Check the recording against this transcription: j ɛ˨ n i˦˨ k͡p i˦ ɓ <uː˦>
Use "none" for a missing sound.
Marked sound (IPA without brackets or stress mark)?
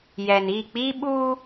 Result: uː˦